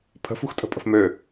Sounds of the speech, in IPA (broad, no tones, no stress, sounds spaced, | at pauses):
pʰ ə̤ f ṳ x tʼ ə̤ pʼ ə̤ f m ø